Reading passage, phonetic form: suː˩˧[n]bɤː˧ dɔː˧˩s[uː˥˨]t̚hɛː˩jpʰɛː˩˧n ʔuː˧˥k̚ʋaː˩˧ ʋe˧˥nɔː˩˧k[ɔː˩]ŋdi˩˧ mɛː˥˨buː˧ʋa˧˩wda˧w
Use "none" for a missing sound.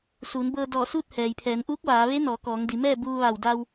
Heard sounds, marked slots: n, uː˥˨, ɔː˩˧

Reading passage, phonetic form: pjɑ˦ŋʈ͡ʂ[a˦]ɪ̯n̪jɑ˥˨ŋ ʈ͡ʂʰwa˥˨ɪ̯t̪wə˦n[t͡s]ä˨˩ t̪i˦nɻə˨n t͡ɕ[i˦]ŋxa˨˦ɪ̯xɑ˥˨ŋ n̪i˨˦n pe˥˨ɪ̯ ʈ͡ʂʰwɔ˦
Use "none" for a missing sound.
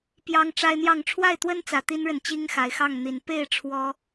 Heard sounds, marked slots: a˦, t͡s, i˦

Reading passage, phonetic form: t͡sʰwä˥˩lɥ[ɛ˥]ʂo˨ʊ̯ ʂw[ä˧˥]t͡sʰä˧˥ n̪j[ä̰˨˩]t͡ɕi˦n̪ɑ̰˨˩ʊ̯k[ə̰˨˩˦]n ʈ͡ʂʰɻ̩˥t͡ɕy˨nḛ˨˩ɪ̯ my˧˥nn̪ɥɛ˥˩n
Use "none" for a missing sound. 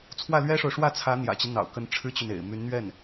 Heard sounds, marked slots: ɛ˥, ä˥˩, ä̰˨˩, ə˧˥

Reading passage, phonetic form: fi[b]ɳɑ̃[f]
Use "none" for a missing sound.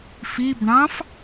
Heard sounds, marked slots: b, f

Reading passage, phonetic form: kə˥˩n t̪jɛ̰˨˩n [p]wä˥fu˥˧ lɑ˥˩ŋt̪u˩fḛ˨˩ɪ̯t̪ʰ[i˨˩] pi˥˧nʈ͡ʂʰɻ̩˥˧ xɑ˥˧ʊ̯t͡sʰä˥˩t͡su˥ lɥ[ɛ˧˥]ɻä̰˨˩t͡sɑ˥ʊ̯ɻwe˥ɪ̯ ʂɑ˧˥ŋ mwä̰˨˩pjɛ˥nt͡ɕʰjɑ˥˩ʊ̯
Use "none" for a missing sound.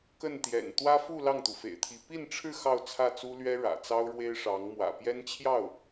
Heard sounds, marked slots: t̪, i˧˥, ɛ˥

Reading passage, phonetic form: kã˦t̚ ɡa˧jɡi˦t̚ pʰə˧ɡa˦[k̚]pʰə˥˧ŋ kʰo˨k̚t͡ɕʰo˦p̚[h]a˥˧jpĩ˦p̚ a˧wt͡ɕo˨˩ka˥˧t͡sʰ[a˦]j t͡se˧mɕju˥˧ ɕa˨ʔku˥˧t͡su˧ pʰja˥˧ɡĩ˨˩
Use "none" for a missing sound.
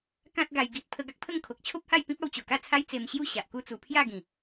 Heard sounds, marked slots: k̚, h, a˦

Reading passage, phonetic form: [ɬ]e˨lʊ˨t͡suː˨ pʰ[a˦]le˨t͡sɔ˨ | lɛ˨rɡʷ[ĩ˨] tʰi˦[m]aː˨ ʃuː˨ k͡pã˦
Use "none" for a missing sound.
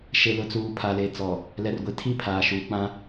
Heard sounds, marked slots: ʃ, a˨, i˨, pʰ

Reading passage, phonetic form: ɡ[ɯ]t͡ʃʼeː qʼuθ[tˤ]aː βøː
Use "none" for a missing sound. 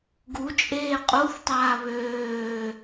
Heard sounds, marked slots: u, tˤ

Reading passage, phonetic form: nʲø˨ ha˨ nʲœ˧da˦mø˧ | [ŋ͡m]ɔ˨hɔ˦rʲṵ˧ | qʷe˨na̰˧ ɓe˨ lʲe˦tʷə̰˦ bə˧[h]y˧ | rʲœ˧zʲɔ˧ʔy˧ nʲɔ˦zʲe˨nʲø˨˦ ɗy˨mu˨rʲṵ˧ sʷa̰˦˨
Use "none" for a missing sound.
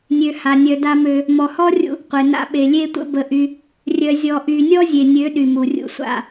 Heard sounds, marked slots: m, ʔ

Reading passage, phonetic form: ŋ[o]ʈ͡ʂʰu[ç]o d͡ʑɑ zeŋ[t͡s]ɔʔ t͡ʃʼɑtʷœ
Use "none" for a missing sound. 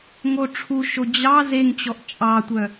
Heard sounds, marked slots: o, ʃ, t͡ɕ

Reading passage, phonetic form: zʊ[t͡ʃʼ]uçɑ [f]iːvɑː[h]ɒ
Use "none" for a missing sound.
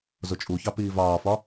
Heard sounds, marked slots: t͡ʃʼ, p, f

